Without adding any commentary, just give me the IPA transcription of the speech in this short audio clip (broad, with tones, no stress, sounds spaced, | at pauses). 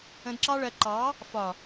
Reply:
ə̃˧ d ǁ ɑ˦ ɭ ɜ˧ ǃ ɑ˨˦ | f ɒ˨